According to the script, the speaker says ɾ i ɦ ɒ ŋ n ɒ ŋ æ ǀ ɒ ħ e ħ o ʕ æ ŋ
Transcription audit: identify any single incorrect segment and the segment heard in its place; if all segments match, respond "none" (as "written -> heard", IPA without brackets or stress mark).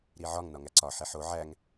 ɦ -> ʕ